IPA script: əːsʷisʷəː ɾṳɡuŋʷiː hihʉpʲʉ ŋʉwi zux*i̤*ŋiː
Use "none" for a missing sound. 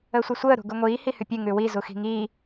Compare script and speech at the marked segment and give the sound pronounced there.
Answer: i̤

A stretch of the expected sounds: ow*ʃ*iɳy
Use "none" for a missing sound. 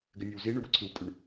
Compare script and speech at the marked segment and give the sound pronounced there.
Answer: z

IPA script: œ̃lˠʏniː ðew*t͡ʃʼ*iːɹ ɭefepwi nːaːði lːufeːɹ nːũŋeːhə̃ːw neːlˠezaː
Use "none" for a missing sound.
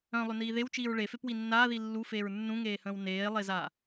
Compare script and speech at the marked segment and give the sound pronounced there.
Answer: t͡ʃ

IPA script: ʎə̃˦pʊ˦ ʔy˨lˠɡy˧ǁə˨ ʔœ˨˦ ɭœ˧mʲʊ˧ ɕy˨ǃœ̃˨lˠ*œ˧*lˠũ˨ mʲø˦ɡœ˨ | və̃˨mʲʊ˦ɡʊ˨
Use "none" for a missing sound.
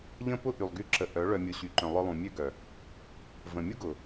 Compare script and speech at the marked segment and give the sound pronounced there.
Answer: œ˧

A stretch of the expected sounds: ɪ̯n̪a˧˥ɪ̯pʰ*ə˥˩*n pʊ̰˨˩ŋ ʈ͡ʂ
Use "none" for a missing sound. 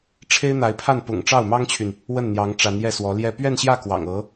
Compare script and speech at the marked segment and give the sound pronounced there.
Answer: a˥˩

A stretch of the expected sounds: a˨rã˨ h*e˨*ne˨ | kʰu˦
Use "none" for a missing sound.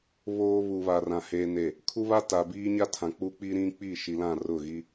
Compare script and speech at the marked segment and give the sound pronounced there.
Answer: e˨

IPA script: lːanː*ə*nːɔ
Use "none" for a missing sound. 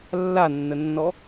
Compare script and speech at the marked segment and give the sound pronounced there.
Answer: ə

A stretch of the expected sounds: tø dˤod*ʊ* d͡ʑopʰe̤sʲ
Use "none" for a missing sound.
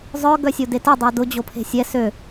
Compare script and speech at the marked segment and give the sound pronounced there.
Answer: ʊ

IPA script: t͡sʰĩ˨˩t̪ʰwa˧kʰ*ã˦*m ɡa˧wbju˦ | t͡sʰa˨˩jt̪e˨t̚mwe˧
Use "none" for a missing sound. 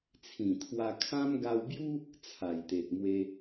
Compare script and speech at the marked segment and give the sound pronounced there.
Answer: ã˦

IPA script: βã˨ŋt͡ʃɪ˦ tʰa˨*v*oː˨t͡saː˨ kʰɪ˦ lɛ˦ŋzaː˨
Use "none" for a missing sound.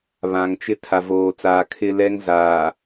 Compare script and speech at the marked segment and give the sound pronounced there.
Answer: v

